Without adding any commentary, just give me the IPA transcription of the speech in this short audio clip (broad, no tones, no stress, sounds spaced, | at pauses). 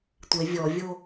tʷ e vʲ ɔ vʲ o